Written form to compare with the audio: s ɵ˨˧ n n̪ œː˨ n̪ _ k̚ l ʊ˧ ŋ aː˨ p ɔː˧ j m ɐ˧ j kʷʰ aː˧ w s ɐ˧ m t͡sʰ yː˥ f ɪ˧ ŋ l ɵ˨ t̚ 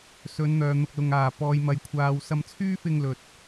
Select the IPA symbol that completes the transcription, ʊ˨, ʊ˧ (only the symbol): ʊ˨